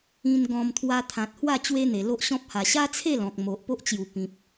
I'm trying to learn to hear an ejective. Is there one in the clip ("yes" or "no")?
no